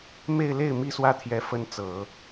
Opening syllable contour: falling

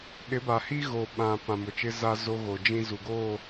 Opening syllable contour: rising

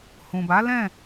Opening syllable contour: low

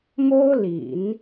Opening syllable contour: high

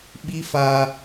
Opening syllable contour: high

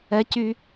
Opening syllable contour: high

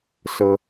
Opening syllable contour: low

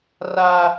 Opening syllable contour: high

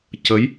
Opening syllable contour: rising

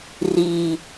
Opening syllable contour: low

